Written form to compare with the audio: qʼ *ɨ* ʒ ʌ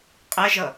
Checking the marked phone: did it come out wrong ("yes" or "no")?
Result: yes